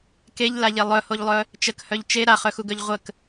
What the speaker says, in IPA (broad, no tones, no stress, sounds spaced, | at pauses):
k e ʎ l a ʎ e lˠ œ h o ʎ lˠ œ | t͡ʃ ə k h œ ʎ t͡ʃ e ɾ a χ œ x u ɡ œ ʎ ʁʷ ə k